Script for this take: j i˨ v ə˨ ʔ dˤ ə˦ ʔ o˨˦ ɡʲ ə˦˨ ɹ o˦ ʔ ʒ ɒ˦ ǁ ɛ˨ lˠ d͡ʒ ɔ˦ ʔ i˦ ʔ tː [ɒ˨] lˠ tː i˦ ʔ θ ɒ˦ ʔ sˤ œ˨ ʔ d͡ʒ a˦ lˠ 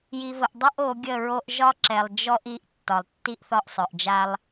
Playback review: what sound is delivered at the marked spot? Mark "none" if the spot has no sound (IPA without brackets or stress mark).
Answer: ɒ˨